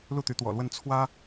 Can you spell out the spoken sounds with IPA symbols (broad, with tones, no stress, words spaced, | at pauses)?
lu˥˩t̪y˧˥t̪wɔ̰˨˩lwə˥˩n t͡sʰwä˥